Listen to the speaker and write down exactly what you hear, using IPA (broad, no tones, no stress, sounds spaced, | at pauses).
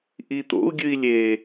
ʔ i t̪ o̰ u̯ ɡʲ ɨ i̯ lʲ e